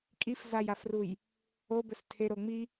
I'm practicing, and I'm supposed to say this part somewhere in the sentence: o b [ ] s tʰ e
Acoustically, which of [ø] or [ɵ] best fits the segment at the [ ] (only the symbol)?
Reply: ɵ